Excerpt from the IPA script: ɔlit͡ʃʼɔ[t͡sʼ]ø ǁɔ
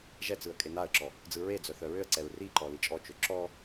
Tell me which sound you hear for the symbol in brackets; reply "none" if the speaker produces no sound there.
t͡ʃ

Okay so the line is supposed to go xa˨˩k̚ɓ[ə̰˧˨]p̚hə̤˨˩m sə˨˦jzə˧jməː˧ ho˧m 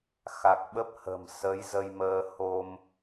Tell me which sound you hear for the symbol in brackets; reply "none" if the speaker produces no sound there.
ə˦˥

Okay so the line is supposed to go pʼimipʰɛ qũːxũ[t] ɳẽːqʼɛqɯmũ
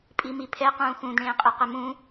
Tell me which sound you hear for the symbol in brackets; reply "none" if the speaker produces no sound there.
d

